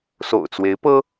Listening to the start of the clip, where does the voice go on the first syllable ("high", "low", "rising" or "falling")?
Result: low